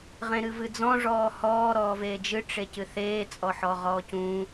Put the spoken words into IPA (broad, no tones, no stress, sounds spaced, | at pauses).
ʁ ẽ ɾ ɨ v ɨ d͡z ɔ̃ ʐ ɔː h ɔː ɾ ɔː v eː d͡ʒ ɨ ʈ͡ʂ e c ɨ θ eː t͡sʼ ɔ ħ ɔ ʁ ɔː c ũ